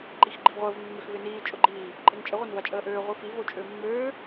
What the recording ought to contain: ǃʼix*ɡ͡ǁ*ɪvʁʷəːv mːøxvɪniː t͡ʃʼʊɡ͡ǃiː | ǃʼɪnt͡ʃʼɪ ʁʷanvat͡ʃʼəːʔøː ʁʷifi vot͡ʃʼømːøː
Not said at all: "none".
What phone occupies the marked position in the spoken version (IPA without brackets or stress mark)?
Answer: ɡ͡ǃ